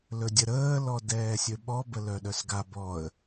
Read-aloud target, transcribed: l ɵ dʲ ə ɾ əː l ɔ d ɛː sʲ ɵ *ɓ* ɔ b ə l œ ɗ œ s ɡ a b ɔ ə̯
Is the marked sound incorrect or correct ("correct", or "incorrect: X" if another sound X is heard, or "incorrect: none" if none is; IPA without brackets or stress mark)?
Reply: correct